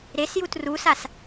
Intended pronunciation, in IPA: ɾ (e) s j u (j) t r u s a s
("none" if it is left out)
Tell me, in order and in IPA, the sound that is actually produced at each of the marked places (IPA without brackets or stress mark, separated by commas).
e, none